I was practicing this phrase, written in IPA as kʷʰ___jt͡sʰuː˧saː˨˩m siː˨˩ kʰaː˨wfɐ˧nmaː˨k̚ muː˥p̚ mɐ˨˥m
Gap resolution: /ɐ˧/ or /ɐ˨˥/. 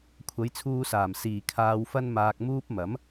ɐ˨˥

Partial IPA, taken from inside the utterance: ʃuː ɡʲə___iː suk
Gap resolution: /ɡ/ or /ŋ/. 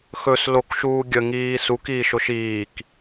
ŋ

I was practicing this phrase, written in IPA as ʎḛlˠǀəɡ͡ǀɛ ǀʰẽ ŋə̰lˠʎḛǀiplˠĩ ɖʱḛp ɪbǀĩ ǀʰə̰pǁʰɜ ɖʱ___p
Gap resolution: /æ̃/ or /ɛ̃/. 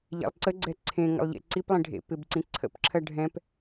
ɛ̃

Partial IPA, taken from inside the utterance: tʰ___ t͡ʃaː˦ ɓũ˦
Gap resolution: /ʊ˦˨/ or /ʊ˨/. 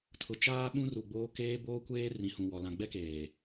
ʊ˨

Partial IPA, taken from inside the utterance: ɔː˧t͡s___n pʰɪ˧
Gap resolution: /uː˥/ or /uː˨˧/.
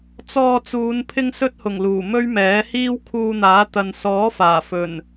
uː˨˧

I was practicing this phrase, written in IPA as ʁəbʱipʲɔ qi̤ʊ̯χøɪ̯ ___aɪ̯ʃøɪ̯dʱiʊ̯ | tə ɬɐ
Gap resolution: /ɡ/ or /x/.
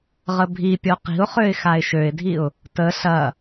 x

